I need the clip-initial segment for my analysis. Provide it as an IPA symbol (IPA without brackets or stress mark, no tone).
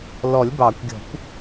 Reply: l